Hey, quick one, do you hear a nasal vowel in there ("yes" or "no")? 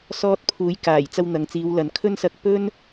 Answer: no